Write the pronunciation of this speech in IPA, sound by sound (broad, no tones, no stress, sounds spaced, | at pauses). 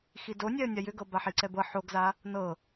x i d o nʲ ɛ ə̯ nʲ a j ʏ ɡ ɤ b a ħ i ǀ ɛ b ɤ ħ o ɡ z a | n ɤ